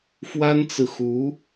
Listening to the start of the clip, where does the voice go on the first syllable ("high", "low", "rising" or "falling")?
high